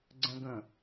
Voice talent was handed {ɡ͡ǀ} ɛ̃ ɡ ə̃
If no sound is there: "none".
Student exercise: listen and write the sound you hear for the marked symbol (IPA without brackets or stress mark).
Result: ɡ͡ǀ